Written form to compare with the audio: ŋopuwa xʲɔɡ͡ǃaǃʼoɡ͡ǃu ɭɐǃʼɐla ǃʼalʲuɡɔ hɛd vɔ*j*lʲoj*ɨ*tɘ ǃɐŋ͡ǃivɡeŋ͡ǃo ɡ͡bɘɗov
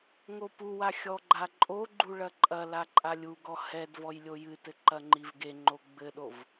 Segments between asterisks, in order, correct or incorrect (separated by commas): correct, correct